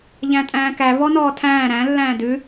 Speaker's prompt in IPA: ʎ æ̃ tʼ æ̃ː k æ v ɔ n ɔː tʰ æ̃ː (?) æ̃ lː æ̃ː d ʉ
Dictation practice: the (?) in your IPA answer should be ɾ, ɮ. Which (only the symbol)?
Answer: ɾ